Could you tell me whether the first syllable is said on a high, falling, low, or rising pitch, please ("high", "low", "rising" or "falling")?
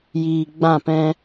low